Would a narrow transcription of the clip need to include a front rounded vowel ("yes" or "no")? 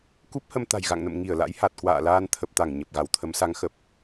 no